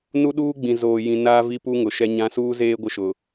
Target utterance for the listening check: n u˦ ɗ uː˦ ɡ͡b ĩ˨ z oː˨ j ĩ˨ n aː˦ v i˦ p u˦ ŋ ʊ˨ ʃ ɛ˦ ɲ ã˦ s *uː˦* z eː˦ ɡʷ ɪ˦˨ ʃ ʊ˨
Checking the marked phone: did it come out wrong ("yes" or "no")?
no